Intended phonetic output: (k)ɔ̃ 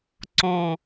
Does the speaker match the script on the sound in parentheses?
no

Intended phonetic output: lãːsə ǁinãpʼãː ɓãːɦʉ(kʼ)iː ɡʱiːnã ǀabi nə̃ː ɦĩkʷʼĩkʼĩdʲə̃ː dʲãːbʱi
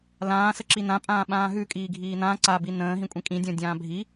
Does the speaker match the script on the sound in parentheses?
yes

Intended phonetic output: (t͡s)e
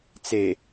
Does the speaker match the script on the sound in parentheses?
yes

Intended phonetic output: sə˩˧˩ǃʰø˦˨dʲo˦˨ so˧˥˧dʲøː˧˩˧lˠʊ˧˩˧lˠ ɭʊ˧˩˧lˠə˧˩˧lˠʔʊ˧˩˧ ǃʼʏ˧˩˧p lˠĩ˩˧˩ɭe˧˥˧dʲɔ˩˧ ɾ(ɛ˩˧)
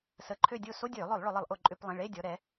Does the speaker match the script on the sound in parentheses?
yes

